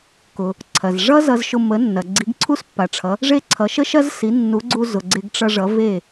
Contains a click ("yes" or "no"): yes